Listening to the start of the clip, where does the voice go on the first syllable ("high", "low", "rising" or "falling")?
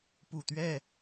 low